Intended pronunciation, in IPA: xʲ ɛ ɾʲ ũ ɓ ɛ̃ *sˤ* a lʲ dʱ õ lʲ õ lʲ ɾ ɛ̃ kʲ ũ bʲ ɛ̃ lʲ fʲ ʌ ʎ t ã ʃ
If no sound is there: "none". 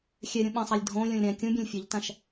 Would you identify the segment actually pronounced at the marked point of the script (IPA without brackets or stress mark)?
sˤ